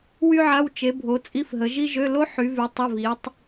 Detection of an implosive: absent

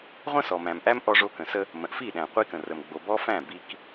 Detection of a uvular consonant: present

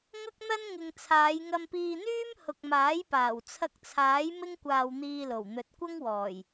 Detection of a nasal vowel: absent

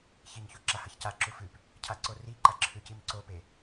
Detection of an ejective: absent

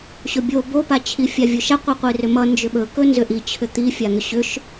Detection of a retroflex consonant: absent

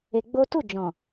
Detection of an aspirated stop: absent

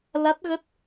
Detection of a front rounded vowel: absent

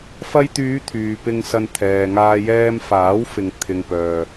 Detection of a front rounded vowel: present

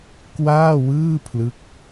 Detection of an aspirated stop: present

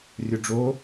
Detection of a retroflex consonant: present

